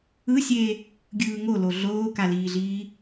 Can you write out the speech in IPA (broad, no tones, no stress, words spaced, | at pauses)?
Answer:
ɯsʲe | ɡʲɯːŋolo ɮoːkaliːɮiː